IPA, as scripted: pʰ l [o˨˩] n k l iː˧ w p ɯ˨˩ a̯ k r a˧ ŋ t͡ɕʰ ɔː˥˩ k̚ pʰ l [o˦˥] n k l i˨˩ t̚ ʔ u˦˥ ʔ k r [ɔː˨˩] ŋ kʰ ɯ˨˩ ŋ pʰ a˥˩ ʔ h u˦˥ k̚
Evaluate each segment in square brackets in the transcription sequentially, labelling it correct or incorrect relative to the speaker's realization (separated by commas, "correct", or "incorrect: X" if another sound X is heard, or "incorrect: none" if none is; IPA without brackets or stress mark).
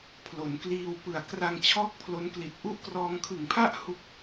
incorrect: o˩˦, correct, incorrect: ɔː˧